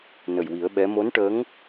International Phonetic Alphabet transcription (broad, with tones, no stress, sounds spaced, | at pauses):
n ə˨˩ j w i˨˩˦ ə̯ ɓ ɛ˧˥ m o˧˥ n ʈ ə˧˥ ŋ